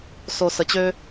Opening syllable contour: low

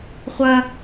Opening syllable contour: high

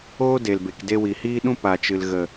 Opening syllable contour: high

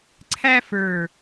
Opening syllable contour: high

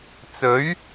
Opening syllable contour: rising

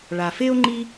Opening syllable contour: low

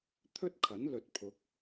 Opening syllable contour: high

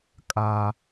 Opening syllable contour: high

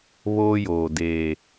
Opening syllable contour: high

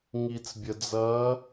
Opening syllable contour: low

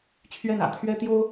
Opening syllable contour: falling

